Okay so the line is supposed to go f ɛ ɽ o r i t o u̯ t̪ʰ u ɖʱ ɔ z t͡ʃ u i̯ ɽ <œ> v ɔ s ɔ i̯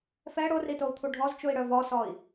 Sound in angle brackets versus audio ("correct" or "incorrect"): correct